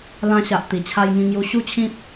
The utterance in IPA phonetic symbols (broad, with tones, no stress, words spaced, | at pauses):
lã˧ɕa˨ʔ t̪i˨˩t͡ɕʰa˧jŋĩ˧ŋju˧ ɕu˥˧t͡ɕʰĩ˦p̚